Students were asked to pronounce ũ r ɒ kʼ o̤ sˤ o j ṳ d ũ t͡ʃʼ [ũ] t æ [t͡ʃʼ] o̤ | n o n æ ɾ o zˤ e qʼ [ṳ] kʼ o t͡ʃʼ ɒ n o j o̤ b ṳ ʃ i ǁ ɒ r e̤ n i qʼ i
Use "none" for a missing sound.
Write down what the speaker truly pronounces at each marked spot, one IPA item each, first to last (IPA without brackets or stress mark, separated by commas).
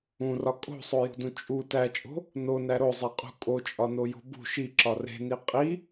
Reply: u, t͡ʃʼ, ṳ